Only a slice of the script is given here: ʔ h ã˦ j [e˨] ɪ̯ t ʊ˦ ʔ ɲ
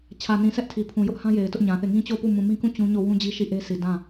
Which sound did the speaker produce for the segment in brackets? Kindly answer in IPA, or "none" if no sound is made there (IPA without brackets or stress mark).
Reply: e˨